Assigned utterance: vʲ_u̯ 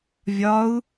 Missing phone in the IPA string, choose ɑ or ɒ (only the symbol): ɒ